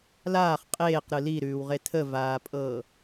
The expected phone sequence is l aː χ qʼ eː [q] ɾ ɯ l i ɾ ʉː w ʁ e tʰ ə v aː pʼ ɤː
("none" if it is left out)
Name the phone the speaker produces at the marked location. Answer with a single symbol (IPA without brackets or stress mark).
q